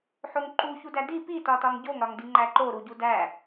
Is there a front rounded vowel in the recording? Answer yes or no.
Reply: no